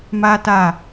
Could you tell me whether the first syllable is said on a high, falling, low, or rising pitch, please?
high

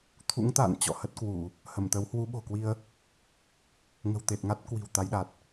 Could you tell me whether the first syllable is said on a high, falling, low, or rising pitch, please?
rising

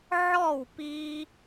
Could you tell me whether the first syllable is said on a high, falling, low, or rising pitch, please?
falling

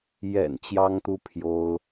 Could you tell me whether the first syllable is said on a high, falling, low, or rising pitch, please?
low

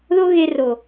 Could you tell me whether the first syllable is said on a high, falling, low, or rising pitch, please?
high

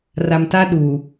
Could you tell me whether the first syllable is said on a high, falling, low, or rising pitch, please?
low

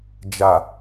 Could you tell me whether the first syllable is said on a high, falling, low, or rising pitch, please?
low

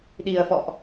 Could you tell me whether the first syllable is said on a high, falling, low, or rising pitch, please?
low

